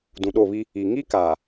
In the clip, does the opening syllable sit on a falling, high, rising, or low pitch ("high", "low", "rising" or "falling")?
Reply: low